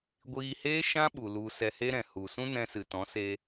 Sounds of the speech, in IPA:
ɡʷiː˧heː˦ ʃã˦ɓu˨ lu˧ sɛ˧he˦ ɾɛ̃˨ hu˨ sũ˦nɛ̃˧sɨ˨ tɔ̃˨˦se˧

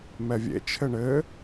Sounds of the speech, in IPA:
mɛvʲḛ t͡ʃʰɘɳɘː

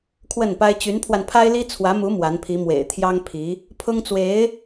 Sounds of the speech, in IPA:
kʰwə˥˩npa˥ɪ̯ t͡ɕy˧˥npʰwa˧n pʰa˥ɪ̯li˥ t͡sʰwä˧˥mu˧˥ mwa˧˥npʰi˧˥ mwḛ˨˩ɪ̯t̪ʰjɑ˥ŋpʰi˧˥ | pʰʊ˥ŋt͡swe˧˥ɪ̯

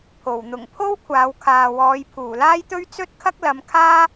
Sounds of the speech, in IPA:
pʰo˨˩w n̪ʊ˨˩ŋpʰo˥w kʷʰaː˨˧wkʰaː˨wɔː˨˧j pʰuː˨˩laː˥jt̪ɵ˥ɥ t͡sɵ˥t̚kʰɐ˥k̚lɐ˨˧mkʰaː˥

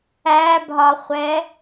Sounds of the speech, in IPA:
æbʱɒχʷɛ

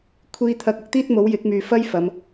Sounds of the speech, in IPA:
kʷʰiː˧t̪ʰɐ˧k̚ ʊ˧k̚t̪iː˥t̚mo˨˥w jɪ˨˥k̚myː˨fɐ˥j fɐ˨˧m

